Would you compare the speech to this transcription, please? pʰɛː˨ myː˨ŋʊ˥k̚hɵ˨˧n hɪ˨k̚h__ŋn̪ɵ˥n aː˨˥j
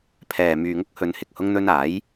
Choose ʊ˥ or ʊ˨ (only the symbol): ʊ˥